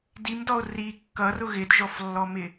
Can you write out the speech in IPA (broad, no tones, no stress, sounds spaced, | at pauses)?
d i m d ɔ o̯ r i kː ʌ r ʊ ɣ ɪ d ʒ ɔ f lː ɔ m ɪ